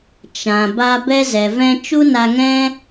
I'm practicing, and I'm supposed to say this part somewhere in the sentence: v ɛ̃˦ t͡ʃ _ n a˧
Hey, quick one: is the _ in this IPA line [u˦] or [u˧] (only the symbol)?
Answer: u˦